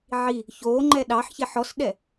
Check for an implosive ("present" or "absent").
present